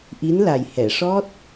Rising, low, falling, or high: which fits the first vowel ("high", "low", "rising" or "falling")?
rising